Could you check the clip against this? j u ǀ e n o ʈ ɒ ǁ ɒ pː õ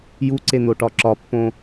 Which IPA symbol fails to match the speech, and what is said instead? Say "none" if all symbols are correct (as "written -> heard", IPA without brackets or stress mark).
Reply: none